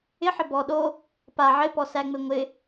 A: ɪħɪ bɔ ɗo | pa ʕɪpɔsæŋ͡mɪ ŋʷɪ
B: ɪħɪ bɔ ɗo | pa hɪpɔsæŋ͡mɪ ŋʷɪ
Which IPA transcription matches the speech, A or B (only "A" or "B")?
A